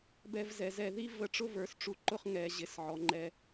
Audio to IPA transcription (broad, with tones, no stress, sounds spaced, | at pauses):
b ɛ˧˩ v z ɛ˩˧ z ɛ˧˩ ð i˥ v ə˧ ʈ͡ʂ ʊ˥ v ə˞˩˧ s ʈ͡ʂ u˧ ǃ ʊ˥˧ χ ŋ ɛ˩˧ ʑ ɪ˩˧ s ʕ ɔ˩˧ ŋ͡ǃ ɛ˧